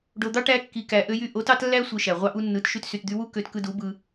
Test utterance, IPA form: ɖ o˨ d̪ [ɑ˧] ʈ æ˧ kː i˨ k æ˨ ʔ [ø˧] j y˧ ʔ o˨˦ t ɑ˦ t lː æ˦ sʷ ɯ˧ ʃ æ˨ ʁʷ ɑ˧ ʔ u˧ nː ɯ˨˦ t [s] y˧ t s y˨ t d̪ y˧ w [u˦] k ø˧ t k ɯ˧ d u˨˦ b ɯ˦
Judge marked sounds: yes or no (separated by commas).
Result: no, yes, no, yes